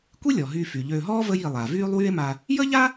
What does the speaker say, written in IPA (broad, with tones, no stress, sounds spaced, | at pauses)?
kʷ i˥ lʲ ɔ˩ ɦ yː˨ f y˩ ʎ øː˨ ɦ ɔː˥ v ə˦ j i˨ lˠ a˩ v yː˦ lˠ w y˦ e̯ m a˨ | j ə˥ ʎ a˥